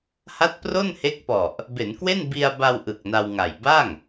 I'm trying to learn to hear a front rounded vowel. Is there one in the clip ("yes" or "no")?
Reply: no